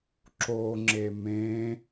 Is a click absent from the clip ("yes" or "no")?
no